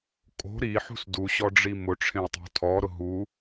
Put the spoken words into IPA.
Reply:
kʼ o̤ ɾ i ħ ṳ s d u ɕ ɔ ɖ͡ʐ i m ʊ ʈ͡ʂʰ ẽ u̯ tˤ o̤ tʰ ɔ ɾ ʊ ɦ u

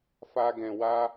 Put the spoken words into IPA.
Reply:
f a˦ ɡ ɛ̃˧ w a˦

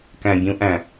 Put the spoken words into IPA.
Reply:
k æ̃˨ bʲ ũ˧ ʔ æ̃˨

